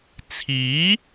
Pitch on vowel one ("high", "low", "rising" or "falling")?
rising